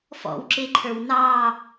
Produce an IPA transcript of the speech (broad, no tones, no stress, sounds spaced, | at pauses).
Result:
f ɔ̰ w ǁ ɪ ǃʰ ə˞ w n ɑ